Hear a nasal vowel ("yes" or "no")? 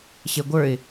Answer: no